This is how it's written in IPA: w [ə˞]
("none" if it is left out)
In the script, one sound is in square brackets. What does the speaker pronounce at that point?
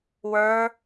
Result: ə˞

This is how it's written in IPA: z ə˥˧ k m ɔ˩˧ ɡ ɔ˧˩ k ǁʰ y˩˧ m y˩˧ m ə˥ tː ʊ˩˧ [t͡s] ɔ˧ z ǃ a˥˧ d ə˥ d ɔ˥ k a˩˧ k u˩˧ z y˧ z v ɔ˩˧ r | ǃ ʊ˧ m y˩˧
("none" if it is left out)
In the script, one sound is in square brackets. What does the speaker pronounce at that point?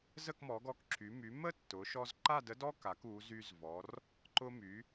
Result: ʃ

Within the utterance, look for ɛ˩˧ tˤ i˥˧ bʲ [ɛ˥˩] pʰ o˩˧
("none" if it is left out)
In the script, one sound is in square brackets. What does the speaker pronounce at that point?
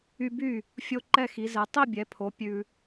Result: ɛ˩˧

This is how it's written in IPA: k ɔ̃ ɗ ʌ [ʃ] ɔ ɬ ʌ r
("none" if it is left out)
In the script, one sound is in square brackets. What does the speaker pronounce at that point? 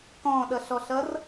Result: ɬ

